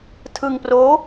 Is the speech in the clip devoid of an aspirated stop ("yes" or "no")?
no